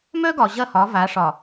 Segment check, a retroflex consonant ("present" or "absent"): present